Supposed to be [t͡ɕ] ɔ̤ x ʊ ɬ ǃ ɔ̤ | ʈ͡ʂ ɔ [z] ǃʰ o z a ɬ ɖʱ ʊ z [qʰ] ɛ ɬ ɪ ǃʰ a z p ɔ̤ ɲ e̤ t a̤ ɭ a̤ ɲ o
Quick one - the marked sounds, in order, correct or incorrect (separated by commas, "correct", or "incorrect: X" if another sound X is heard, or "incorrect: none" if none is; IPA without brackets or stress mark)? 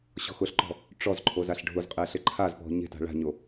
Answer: incorrect: ɕ, correct, incorrect: qʼ